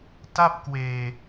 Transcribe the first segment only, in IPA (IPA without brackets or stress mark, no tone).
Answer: t